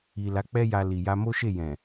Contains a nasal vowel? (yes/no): yes